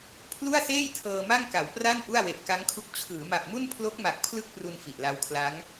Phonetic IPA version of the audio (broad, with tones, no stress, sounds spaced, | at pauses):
pʰ l u˥˩ a̯ s eː˥˩ j tʰ ɤː˧ m a˥˩ ŋ k a˩˦ w p r a˥˩ n ʔ u˥˩ a̯ w e˨˩ ʔ k a˦˥ ŋ kʰ u˦˥ k̚ t͡ɕʰ ɯː˩˦ m a˨˩ p̚ m u˥˩ n pʰ l o˦˥ k̚ m a˨˩ k̚ pʰ l ɯ˥˩ k̚ p r u˧ n f i˨˩ ʔ l a˦˥ w kʰ l a˦˥ ŋ